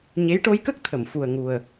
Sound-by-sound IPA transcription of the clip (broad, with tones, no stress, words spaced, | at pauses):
ɲe˧˥jʈo˧˥jkə˦˥k̚ t̪ʰə˨˩˨mfu˨˩ə̯ŋu˨˩ə̯